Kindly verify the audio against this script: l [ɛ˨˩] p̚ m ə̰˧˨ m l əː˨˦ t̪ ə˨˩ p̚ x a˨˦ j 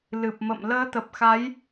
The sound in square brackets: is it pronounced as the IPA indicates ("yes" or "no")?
no